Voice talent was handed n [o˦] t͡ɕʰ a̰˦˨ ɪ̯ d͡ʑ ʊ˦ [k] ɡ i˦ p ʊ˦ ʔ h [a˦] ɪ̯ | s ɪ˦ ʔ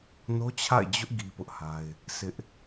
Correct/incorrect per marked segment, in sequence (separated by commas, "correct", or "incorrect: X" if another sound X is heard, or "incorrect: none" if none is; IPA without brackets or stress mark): correct, incorrect: ʔ, correct